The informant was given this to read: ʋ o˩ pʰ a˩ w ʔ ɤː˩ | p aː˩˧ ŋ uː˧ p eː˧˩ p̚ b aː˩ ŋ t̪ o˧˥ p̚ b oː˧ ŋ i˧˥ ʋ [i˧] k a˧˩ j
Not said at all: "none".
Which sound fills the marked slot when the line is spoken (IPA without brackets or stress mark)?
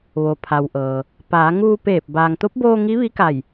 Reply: i˧˥